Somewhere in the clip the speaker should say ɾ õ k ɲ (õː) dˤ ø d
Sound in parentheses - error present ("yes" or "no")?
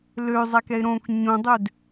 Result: yes